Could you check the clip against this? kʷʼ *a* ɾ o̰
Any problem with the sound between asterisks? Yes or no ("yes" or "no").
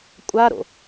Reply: no